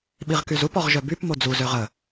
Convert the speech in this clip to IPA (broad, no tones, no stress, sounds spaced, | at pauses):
ɓ i ʁ k y z u p ɔ ʁ ʒ œ b y p m o d͡z u z ø ʁ ə